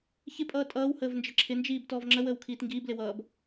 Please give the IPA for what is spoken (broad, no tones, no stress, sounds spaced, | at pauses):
ç ɪ pʼ ʌː tʼ ʌː w h əː v n d͡ʒ ə ǁʰ ɪ n d͡ʒ iː b t ɔː v ŋ͡ǁ ə w əː w kʰ iː t ŋ ɡ iː b l ɪ w ʌː b